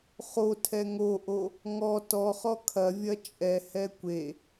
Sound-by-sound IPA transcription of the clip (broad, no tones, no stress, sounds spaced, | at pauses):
χ o tʰ ɛ ŋ o ʔ o | ŋ ɔ t ɔ χ ɔ kʰ ɐ vʲ ɐ t͡ʃʼ ɛ h ɛ kʷ e